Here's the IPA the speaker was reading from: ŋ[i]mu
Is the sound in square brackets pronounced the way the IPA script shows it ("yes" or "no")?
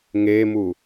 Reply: no